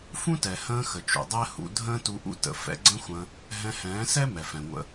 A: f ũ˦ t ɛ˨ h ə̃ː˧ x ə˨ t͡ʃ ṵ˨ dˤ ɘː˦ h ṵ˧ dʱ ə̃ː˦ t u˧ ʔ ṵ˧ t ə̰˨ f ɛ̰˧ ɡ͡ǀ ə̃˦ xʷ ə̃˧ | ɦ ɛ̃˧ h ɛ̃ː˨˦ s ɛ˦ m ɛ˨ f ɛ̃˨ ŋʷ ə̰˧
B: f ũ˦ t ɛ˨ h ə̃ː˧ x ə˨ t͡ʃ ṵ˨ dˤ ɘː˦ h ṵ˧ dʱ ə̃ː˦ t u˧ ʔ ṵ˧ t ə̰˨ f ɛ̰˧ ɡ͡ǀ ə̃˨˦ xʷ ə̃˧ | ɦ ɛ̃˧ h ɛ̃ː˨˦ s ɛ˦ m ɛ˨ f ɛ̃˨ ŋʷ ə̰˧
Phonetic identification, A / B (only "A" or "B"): A